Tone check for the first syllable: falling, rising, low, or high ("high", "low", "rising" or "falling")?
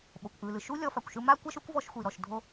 low